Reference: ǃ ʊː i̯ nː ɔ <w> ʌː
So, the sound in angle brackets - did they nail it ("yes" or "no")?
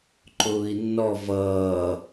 no